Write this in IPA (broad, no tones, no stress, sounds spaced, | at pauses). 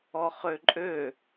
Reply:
ɔ χ ø ǃʼ ø